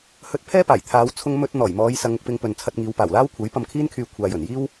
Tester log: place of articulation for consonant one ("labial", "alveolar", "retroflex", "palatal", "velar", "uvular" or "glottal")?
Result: glottal